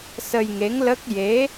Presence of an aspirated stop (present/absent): absent